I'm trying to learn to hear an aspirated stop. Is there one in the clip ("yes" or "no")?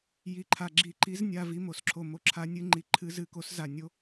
yes